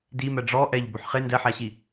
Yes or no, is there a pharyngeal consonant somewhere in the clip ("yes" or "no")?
yes